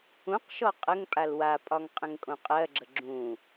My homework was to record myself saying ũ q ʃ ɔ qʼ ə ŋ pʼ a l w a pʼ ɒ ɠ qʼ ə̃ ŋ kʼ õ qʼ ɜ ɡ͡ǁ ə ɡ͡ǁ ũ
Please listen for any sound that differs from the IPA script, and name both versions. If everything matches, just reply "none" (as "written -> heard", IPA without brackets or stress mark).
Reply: ɠ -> ŋ